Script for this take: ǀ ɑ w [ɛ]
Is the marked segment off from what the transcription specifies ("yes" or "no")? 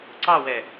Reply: no